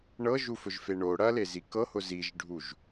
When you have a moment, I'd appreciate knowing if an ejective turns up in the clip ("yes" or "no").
no